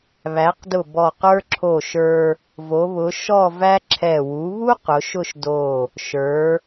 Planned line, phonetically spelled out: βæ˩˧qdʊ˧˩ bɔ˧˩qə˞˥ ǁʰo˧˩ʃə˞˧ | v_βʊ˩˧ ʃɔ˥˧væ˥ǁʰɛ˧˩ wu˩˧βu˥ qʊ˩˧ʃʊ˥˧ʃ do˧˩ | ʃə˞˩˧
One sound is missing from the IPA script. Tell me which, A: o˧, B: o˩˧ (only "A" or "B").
B